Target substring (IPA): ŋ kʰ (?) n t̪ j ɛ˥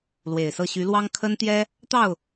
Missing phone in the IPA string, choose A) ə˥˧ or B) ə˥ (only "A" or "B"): B